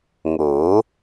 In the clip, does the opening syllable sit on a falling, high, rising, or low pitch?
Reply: rising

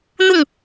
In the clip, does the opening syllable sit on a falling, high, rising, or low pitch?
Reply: falling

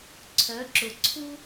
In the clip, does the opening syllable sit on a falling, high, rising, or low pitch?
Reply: rising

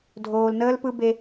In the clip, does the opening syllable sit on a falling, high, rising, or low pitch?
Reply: low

